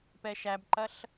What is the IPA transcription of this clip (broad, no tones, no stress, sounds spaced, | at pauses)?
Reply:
p ɛ ʃ æ b ǃ ɐ ɬ